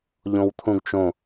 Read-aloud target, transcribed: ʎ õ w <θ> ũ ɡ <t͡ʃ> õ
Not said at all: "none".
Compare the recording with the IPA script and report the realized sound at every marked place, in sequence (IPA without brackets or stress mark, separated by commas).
t̪ʰ, t͡ʃ